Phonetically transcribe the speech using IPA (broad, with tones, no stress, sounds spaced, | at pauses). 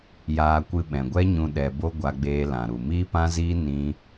j aː˧ kʷ ɨ˧ ɓ ɛ̃˨ ɡʷ ɛ˦ ɲ ũ˧ ɗ ɛ˨ b o˧ ɡʷ a˧ ɡ͡b eː˧ l ã˨ ɾ u˨ m iː˦ p ã˦ z iː˦ n ĩ˦